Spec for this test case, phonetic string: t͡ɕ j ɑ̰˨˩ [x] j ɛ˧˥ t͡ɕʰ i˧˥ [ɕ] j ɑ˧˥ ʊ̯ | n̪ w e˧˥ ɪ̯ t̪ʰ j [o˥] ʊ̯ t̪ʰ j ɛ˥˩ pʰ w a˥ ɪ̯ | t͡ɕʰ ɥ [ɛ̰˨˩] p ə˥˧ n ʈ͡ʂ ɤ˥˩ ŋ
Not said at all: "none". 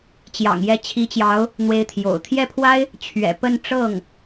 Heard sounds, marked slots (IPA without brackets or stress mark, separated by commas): ŋ, t͡ɕ, o̰˨˩, ɛ̰˨˩